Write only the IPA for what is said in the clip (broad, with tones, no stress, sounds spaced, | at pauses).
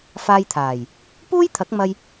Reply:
f aː˧ j t̪ʰ aː˨˩ j | p uː˥ j t̪ʰ ɐ˨˥ k̚ m ɐ˧ j